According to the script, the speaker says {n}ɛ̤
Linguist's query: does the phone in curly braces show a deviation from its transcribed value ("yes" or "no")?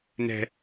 no